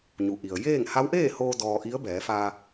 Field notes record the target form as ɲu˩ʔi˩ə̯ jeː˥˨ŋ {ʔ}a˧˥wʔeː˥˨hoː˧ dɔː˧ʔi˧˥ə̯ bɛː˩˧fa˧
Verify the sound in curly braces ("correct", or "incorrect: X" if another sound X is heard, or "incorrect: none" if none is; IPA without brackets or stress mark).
incorrect: h